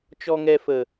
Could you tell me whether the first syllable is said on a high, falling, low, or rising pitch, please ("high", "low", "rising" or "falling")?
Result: low